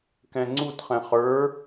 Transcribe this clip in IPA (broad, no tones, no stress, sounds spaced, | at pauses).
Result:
k ɛ̃ ŋ͡ǀ u t χ ɛ̃ χ ə˞